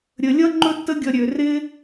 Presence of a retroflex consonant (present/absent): absent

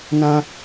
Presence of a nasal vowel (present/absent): present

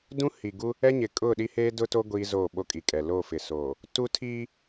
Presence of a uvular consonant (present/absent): absent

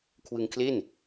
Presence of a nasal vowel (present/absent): absent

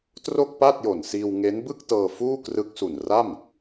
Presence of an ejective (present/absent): absent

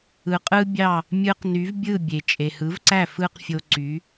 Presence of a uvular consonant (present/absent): present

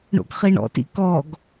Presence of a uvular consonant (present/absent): present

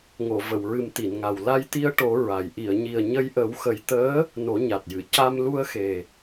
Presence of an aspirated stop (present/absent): absent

